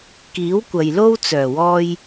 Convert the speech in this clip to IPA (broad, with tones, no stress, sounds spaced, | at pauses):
k iː˨˥ w kʷ ɐ˨ j l o˥ w t͡s œː˨˩ w ɔː˧ j